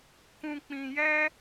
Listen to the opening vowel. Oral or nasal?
nasal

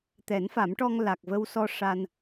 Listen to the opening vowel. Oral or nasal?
oral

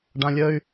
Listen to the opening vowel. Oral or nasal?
nasal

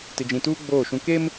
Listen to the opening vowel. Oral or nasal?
oral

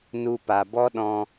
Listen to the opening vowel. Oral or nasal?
oral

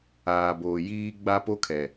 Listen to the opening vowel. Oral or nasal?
oral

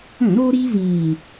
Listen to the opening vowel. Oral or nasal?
nasal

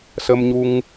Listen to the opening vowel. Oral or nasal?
oral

